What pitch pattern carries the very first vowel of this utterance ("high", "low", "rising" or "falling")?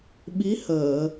rising